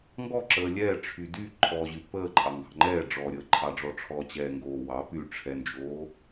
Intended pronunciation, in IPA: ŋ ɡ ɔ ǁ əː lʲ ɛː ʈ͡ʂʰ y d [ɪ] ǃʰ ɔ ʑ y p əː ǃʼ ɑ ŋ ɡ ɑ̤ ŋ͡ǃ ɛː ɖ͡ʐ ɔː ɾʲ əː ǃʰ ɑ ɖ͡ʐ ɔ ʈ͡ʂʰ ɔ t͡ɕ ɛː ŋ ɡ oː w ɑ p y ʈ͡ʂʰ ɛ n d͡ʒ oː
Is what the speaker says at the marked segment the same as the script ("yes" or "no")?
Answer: no